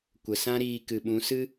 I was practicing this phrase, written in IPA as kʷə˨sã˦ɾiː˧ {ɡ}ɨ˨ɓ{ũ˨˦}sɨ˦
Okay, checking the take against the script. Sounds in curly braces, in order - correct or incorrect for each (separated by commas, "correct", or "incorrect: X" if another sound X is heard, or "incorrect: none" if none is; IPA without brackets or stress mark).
incorrect: k, correct